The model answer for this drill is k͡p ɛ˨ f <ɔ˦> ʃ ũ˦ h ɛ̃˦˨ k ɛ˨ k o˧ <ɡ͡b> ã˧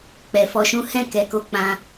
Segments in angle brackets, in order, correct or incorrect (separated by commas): incorrect, incorrect